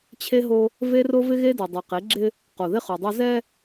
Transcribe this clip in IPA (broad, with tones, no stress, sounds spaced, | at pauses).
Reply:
t͡ɕʰ e˦ ɦ o˦ | v e˦ r o˦ v ɪ˦ ɣ e˦ d ɛ˨ dˤ e˨ q e˨˦ ɡ͡ǁ ɪ˦ | q o˨ ð ɪ˦ χ o˨ dˤ o˦ z ɛ˦